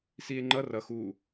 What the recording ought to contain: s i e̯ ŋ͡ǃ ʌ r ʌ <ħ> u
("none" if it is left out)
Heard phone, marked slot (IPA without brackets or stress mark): x